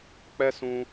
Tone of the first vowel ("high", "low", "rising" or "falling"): high